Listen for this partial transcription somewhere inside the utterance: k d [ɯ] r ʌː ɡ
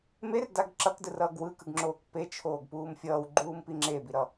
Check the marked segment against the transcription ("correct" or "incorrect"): correct